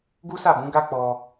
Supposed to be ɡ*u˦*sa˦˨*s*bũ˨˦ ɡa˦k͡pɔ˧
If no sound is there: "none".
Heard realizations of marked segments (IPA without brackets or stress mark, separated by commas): u˦, none